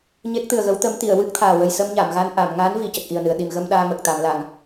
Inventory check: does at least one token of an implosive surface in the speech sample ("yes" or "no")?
yes